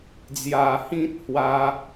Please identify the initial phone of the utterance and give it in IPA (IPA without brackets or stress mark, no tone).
d͡z